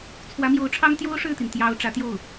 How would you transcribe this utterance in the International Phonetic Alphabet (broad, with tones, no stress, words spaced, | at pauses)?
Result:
t͡sʰwä˧˥mjo˧˥ʊ̯ʈ͡ʂʰɑ˥ŋ t̪jo˥ʊ̯ʂɻ̩˥˩t̪i˩n t̪jɑ˥ʊ̯ ʈ͡ʂä˧˥t̪jo˥˩ʊ̯